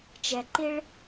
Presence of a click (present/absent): present